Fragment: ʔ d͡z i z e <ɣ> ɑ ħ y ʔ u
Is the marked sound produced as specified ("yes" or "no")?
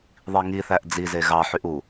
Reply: yes